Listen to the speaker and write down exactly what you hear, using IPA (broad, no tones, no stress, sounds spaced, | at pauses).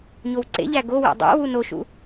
ɲ o w ǀ ḛ ʎ æ ɡ o w ḛ dˤ æ̰ w u n o ʃ ṵ